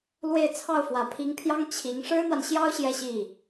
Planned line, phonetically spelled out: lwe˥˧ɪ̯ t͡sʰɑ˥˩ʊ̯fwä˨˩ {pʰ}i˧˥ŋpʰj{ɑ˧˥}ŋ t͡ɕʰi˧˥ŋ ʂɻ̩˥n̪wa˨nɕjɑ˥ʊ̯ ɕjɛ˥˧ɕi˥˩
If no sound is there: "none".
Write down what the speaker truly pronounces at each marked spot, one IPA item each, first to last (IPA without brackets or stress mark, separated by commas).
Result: pʰ, ɑ˥